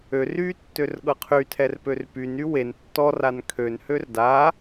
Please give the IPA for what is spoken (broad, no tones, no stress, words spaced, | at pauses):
ør y tːørɠɤqʰytʰɛr pørpyny wen tːɔr ankʰønhør da